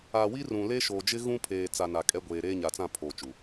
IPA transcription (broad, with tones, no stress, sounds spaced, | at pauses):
a˨ w i˦ r ũ˨ l e˦ ʃ oː˨ d͡ʒ ɪ˦ ɣ ũ˦ pʰ eː˨ t͡s a˨ n a˨ kʼ ɛ˦ ɡʷ eː˨ ɾ eː˦ ɲ a˨ t͡s ã˦˨ pʰ oː˨ t͡ʃ u˨